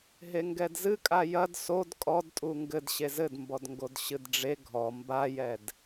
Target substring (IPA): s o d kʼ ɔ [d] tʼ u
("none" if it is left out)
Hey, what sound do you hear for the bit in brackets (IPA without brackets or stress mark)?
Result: d